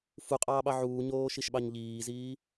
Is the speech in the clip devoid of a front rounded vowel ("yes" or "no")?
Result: yes